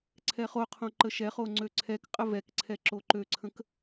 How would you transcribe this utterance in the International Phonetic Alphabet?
ǀʰ ɛ χ o qʰ õ ǃ ə ʃ ɛ χ o ŋ͡ǀ ø ǀʰ ɛ k qʼ ə v ɛ k ǀʰ ɛ ǁ o ǃ ø ǀʰ ə̃ k

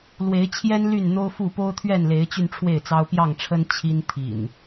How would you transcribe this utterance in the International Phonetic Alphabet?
l w e˨˦ ɪ̯ t͡ɕʰ j ɛ˦ n l y˥˨ n n̪ o˦ ʊ̯ f u˥˨ p o˦ ʊ̯ t̪ʰ ɥ ɛ˥˨ n l e˨˦ ɪ̯ t͡ɕ y˧ n ʈ͡ʂʰ w e˥˨ ɪ̯ t͡s ɑ˦ ʊ̯ p j ɑ˥˨ ŋ ʈ͡ʂʰ ə˦ n t͡ɕʰ i˦ n t̪ʰ ḭ˨˩ n

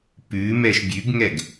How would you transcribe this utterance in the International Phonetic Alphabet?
p ʉ m ɛ ʃ bʲ ʉ ɡ ŋ ɛ ɡ

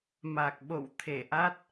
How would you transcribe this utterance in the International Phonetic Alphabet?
m a˨˩ k̚ ɓ o̰˧˨ w t̪ʰ e˧˩ ʔ a˦˥ t̚

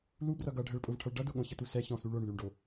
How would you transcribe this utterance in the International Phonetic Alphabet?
l u b r ʌ ɡ ʌ ɖʱ ə ɭ pʼ ʊ v ʈʰ ʌ ɭ ɖ ʌ d ʊ ɠ õ ç ə t u s ɛ ç ɔ̃ s u ɭ o ɳ l ʉ ɳ ɖ o

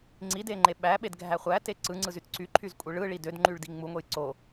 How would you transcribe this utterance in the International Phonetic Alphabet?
ŋ͡ǀ i d e ŋ͡ǃ e ɓ æ ɓ e d ɡʱ æ χʷ æ t e ǀ ɯ ŋ͡ǀ ɯ z y t ǀ y ǃʰ y z kʷʼ ɯ ɭ ɯ ɭ i d ø d ŋ͡ǃ y ɭ d i ŋ͡m u ŋʷ e j ǀ o

